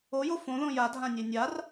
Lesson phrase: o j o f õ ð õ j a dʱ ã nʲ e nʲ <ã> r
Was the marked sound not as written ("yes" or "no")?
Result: yes